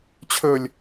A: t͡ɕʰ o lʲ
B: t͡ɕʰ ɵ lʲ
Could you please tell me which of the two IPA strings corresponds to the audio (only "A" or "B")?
B